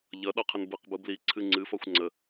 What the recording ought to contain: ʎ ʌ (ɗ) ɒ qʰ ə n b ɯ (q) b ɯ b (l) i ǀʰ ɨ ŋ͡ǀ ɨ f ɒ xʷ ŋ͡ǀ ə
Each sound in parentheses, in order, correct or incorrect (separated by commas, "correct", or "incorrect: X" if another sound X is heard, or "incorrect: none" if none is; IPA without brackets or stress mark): correct, correct, correct